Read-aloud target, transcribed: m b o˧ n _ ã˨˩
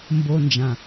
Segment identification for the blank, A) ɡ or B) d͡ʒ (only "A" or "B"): B